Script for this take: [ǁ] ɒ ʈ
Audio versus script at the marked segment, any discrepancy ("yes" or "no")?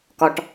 yes